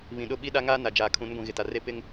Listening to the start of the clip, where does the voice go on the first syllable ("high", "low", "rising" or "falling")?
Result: low